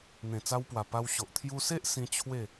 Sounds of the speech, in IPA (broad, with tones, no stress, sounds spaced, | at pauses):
n̪ ẽ˨˩ t͡s a˧ w p w a˨˩ p a˧ w ɕ o˨ ʔ t̪ʰ j u˧ s e˦ ʔ s ĩ˧ t͡ɕʰ w e˥˧